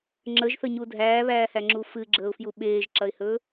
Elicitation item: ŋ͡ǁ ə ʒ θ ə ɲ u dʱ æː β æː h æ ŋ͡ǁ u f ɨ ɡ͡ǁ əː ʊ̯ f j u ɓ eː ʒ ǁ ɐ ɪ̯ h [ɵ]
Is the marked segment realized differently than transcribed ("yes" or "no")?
no